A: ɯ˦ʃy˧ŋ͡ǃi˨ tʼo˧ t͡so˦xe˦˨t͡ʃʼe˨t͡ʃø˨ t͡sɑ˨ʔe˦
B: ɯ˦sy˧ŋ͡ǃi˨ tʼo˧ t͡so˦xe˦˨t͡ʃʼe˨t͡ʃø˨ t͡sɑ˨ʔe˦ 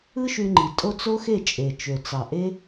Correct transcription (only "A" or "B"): A